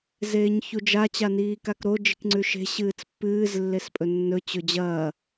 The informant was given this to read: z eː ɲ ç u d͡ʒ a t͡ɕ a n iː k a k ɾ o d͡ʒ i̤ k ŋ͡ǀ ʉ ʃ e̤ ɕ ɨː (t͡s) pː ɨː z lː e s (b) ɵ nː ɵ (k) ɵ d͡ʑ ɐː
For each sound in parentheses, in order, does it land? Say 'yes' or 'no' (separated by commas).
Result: yes, no, no